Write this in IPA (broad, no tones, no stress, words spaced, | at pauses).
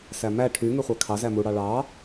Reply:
sæmæ ʈʰy ŋyχʷækʰɑ zæmu ɽɑɭɑ